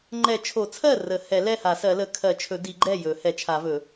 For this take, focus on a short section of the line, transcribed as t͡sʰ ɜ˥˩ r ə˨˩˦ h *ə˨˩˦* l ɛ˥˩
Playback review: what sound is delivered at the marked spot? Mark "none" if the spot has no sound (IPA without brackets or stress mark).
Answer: ɛ˨˩˦